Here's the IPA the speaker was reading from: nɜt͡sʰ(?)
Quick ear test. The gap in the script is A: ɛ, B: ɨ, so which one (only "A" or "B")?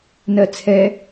A